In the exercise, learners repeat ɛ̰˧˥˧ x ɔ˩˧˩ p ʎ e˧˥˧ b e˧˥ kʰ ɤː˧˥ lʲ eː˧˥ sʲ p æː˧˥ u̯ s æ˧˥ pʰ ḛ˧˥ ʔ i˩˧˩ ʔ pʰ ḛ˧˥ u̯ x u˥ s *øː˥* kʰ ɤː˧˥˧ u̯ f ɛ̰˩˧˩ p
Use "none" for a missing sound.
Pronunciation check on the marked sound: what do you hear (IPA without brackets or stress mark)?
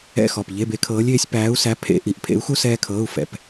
ɛː˥